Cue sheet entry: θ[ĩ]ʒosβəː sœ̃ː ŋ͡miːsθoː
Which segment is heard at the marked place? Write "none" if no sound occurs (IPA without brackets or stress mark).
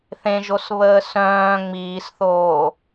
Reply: ẽ